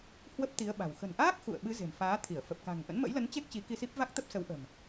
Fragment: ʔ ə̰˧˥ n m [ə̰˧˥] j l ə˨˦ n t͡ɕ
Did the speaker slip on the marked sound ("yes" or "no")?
no